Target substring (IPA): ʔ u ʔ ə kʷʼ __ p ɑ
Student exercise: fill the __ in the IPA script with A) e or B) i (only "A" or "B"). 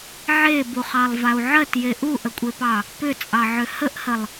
A